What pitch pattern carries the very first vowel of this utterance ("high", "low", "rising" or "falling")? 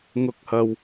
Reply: rising